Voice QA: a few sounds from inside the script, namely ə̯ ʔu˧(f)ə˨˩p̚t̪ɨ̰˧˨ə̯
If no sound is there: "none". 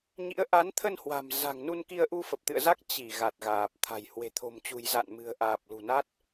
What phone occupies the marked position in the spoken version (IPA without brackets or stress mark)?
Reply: f